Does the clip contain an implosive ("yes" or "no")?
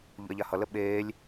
yes